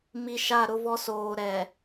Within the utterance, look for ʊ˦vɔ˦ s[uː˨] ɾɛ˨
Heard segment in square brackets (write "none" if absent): oː˨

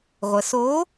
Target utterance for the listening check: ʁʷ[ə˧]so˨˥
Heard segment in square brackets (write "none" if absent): ə˩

